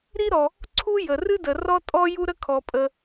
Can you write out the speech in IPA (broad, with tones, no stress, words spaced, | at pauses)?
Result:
ɾi˥ɾɔ˩ | ǀʰu˥ jə˩ rɨ˥də˩ rɔ˥tʼɔ˥ ju˥ɾə˥ kʰɔ˩pʼə˩